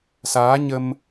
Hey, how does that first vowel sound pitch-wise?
rising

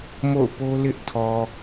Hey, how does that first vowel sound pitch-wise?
falling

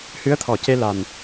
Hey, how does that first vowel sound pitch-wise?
rising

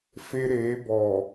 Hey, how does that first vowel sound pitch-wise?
high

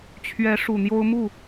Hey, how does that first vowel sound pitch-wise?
rising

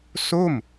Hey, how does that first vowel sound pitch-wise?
falling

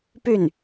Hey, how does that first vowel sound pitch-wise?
falling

